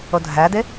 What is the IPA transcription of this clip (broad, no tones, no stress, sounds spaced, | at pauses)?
o dʱ æ d ɪ